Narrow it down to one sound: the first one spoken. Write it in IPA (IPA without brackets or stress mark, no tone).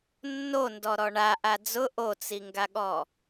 nː